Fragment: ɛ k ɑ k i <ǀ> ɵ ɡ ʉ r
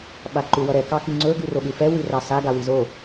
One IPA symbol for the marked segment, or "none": ŋ͡ǀ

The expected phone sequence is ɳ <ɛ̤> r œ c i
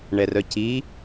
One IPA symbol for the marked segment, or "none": ɛ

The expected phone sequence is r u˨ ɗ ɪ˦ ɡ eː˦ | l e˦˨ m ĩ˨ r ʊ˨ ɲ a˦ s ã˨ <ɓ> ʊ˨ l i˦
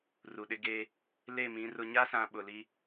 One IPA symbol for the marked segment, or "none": ɓ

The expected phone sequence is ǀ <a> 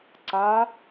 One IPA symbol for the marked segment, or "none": a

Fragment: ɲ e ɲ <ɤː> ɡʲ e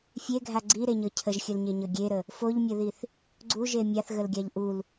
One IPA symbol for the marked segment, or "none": ɤ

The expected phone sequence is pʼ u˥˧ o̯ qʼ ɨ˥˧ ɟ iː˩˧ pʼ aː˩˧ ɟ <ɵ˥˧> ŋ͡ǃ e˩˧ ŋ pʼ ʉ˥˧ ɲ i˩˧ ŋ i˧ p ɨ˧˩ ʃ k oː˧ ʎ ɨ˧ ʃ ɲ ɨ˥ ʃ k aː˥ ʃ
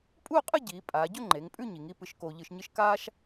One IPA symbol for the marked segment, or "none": ɵ˥˧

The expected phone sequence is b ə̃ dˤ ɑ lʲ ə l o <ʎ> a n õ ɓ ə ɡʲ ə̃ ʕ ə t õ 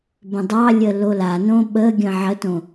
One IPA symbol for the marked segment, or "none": l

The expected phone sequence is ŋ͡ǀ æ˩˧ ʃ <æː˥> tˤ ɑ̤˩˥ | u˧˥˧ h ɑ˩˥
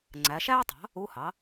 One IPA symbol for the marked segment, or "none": æː˥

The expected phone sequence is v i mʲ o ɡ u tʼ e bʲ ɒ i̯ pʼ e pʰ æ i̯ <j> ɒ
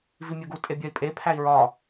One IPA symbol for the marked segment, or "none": ɹ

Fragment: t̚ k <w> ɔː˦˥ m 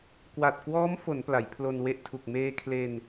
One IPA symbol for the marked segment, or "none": w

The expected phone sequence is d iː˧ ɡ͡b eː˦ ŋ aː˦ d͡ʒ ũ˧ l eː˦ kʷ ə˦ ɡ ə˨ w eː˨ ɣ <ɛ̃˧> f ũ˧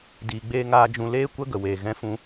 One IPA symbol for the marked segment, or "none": ɛ̃˧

